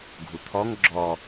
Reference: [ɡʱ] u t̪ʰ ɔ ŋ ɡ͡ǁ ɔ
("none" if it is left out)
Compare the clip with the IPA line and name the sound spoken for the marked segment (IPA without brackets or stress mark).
ɡʱ